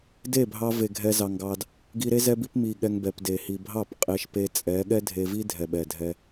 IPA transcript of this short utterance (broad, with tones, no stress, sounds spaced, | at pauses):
d e˦˨ bʱ ɑ˧ v e˨ ɡʱ ɛ˧ z ɑ˨ ŋ ɡ ɑ˧ d | ɡ i˧ ɾ e˦ z ɛ˧ b i˧ p m i˨ ɠ ɛ˧ ŋ b ɛ˨ p d e˨ h i˨ bʱ ɑ˦˨ p qʼ e˧ ʃ p e˧ t͡sʼ ɛ˨˦ ɠ ɛ˦ dʱ e˧ v i˦ dʱ ɛ˨ ɓ ɛ˨ dʱ ɛ˧